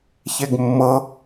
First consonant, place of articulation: palatal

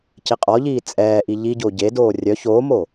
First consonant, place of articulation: palatal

